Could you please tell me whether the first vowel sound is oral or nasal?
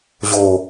oral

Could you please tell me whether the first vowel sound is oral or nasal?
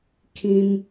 nasal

